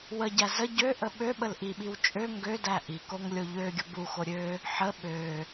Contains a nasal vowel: no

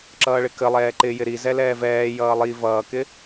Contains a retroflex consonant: yes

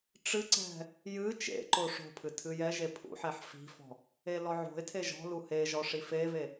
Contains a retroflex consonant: yes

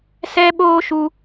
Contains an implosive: yes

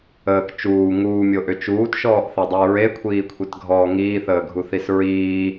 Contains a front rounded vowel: yes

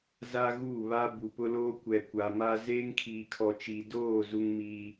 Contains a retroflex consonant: no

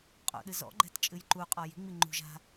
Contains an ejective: yes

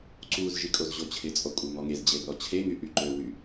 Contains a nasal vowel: no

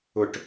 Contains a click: no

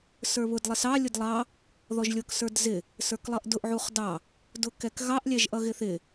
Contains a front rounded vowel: no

